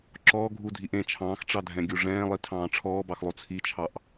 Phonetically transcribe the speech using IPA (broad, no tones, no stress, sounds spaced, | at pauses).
ǁ ɔː ɡʱ u dʱ i ʔ ẽ t͡ʃʰ ɑ̃ː x ʈ͡ʂ ɑ dʱ ɛ̃ ɡʲ u ʐ ɛ̃ː lˠ i tʰ ɑ̃ː ʈ͡ʂʰ ɔː b ɑ x lˠ o t͡sʰ i t͡ʃʰ ɑ ʔ